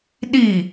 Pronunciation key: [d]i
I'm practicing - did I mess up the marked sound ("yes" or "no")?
yes